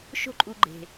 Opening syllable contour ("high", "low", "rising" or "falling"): high